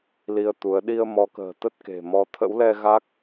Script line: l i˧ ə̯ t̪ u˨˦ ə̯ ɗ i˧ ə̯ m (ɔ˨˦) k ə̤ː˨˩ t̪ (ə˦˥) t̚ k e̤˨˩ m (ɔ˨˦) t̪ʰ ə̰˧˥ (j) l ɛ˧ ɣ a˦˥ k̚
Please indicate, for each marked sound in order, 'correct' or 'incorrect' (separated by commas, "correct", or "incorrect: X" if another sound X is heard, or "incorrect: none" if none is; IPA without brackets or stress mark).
correct, correct, correct, incorrect: w